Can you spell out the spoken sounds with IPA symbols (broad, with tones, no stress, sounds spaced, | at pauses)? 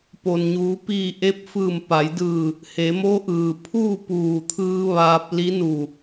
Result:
p o˩ n ɲ uː˩˧ p iː˧˩ ʔ e˧˥ p̚ f ɯː˧˩ m p a˩˧ j d ɯː˧˩ | h e˩˧ m o˧˥ ʔ ɯː˩ pʰ uː˥˨ p uː˧˩ t̪ʰ ɯː˧ ʋ aː˧ p̚ l i˧˥ n u˧˩